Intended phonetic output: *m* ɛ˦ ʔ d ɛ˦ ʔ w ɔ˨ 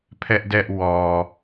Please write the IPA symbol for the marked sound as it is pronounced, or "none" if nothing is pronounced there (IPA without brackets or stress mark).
pʰ